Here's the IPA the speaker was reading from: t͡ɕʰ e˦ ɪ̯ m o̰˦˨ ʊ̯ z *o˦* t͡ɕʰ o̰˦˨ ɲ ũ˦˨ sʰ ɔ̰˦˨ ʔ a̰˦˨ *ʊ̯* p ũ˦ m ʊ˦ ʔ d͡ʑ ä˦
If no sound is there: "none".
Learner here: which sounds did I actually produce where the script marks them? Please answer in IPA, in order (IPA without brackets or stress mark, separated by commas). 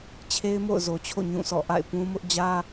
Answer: o˨, ɪ̯